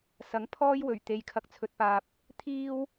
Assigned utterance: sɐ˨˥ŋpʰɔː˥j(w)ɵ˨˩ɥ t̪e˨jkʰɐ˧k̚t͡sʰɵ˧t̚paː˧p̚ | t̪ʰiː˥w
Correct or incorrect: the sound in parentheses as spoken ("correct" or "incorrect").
correct